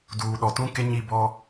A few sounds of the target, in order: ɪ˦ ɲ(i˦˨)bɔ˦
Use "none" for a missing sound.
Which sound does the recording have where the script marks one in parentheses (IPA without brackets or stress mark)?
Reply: i˦˨